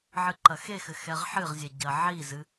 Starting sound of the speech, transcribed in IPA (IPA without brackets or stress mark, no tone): ʕ